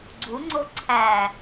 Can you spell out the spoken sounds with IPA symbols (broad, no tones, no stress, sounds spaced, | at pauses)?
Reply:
ɡ͡ǀ u ŋ͡ǀ o ǀʰ æ